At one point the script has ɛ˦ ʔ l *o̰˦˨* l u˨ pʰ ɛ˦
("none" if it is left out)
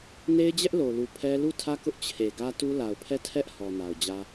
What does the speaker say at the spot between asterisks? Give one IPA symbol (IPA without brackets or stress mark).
o˨